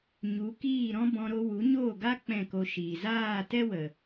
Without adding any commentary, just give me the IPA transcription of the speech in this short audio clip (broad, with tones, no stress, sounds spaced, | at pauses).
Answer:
ɲ u˨˦ k iː˦˨ ɾ ɔ̃˦ b ɔ̃˧ ɾ o˧ w u˨˦ ɲ oː˦˨ ɡ a˦ k͡p ɛ̃˦˨ k o˧ ʃ iː˨ z aː˦˨ t ɛ˦ w ə˨